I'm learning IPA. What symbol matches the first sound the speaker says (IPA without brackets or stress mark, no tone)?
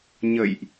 ɲ